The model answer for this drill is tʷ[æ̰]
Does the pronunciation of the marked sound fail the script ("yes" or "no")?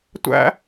no